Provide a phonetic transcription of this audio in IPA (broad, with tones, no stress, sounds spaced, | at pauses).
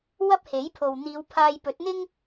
w ɐ˥ p̚ h e˨˥ j pʰ o˨ w n̪ iː˨˧ w pʰ aː˧ j p ɵ˨˥ t̚ n̪ ɪ˥ ŋ